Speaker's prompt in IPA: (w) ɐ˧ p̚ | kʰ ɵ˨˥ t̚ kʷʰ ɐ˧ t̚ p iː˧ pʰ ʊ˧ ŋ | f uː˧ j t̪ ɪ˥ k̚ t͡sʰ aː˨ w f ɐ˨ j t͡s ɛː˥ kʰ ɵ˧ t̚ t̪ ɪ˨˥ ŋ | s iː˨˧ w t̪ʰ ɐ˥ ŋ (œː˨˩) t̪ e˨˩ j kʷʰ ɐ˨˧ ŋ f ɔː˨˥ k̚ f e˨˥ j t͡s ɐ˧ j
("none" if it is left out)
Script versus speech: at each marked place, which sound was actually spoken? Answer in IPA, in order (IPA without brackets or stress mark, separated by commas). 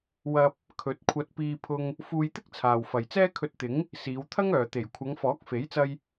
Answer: w, œː˨